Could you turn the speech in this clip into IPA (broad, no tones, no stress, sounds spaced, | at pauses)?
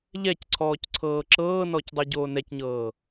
ʎ ɛ c ǀʰ ɔː c ǀʰ ɤː ǁ ɤː n ɔ c dˤ o ɟ oː n ɛ c ɲ ɤː